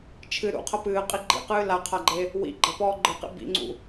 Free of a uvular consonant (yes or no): no